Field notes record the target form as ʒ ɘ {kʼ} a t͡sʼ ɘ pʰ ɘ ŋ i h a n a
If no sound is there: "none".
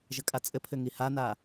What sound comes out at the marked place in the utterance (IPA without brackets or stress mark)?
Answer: kʼ